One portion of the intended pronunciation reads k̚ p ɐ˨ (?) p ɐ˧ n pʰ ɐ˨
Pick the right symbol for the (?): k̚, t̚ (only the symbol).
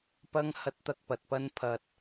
t̚